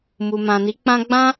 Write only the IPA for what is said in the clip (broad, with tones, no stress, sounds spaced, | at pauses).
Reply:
m u˨ m ã˨ n i˨˦ k͡p ã˦ ɡ͡b ã˦